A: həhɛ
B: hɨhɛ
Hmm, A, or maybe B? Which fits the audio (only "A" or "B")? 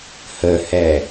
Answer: A